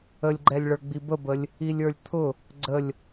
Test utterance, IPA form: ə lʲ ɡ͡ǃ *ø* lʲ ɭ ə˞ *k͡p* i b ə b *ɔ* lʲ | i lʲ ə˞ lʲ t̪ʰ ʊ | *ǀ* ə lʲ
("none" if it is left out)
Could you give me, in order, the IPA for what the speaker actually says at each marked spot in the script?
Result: ɛ, ɡ͡b, ə, ɡ͡ǀ

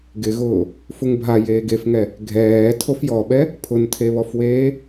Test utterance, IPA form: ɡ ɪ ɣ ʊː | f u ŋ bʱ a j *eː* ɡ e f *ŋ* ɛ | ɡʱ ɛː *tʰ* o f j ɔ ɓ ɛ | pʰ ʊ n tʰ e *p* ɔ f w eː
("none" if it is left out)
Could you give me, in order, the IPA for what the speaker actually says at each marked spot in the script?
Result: eː, ŋ, tʰ, β

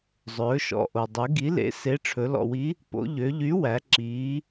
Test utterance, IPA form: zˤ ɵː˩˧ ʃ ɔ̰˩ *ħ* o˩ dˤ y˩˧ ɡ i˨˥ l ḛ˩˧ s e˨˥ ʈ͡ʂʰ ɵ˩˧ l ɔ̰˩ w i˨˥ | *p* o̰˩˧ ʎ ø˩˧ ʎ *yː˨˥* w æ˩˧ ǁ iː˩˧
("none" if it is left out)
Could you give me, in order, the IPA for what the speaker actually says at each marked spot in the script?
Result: ʔ, p, y˨˥

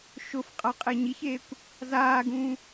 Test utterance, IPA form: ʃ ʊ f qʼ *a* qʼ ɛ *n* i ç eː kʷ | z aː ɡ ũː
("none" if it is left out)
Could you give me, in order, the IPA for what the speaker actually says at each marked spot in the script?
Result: a, ɲ

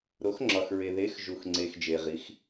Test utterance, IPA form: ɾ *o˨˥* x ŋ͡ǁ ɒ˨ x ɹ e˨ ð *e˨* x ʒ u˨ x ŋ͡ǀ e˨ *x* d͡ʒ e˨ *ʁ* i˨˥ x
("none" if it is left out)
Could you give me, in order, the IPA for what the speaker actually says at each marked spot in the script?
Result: o˨˥, e˨˥, x, ʁ

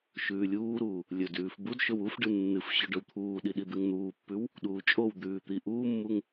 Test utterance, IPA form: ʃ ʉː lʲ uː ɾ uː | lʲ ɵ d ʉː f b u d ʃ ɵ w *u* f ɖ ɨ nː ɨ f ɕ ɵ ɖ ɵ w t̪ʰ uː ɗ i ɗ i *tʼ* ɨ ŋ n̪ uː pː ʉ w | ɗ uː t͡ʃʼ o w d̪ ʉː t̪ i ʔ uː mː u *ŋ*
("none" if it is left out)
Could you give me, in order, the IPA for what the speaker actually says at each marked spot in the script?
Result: u, d̪, ŋ

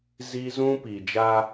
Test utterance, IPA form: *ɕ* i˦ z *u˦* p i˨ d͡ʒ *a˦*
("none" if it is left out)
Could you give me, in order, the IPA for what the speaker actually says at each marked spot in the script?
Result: z, ũ˦, a˦

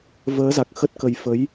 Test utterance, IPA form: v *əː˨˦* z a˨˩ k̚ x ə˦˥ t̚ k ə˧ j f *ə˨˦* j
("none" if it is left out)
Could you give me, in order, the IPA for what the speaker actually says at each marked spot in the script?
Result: əː˨˦, ə˨˦

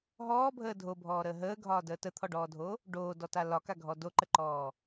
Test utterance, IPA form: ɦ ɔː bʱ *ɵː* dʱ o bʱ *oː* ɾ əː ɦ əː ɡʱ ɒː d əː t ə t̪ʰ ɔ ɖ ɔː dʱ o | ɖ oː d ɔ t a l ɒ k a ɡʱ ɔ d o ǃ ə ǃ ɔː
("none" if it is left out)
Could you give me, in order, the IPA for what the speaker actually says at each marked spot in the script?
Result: əː, ɔː

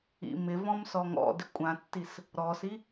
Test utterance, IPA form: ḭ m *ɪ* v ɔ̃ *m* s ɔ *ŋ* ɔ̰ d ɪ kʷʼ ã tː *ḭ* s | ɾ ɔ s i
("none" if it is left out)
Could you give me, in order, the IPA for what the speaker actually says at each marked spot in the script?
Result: ɪ, m, ŋ, i

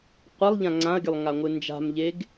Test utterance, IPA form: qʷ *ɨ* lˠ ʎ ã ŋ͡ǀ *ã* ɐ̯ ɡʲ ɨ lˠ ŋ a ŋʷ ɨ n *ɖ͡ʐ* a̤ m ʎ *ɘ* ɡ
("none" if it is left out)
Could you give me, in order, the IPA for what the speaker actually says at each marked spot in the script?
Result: ɛ, ã, d͡ʒ, e

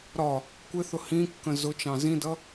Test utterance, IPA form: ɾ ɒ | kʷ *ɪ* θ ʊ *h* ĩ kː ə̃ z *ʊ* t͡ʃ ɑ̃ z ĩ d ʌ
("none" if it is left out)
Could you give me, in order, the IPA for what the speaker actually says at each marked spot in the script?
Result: ɪ, h, ʊ

